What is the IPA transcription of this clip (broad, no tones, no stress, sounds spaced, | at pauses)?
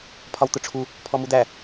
pʰ ɒ w t̪ ʊ ʈ͡ʂʰ u | pʰ ɔ m u d̪ æ